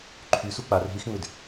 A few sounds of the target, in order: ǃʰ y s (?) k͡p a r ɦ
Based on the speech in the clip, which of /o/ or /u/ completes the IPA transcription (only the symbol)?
u